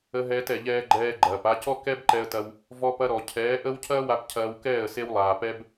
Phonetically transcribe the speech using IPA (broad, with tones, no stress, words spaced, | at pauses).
ə˧ɦɛː˧tɛ˨ʎɛː˧ ɡ͡ǃɛː˧ɡ͡ǃɐː˨p a˧cɔ˦ kɛ˦bǃɛ˧ə̯tɐ˧w | vɔ˧pɐ˧ ɾɔ˨ cʰɛː˨˦ʔə˦w cʰɐː˦wa˧p cʰɐː˧wkɛː˦˨ə̯ se˦wlˠaː˨ pɛ˦b